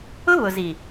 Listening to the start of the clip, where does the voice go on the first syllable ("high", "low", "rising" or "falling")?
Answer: high